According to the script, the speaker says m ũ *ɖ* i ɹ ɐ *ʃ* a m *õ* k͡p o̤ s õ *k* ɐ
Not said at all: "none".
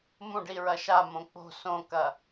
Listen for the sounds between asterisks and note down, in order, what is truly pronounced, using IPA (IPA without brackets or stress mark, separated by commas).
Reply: ɖ, ʃ, õ, k